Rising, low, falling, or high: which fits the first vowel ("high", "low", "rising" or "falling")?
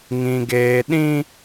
high